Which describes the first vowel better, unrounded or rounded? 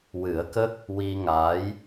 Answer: unrounded